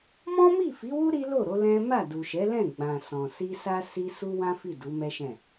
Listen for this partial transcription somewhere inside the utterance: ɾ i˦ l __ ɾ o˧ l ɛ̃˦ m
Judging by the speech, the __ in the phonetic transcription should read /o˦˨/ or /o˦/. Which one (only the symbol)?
o˦˨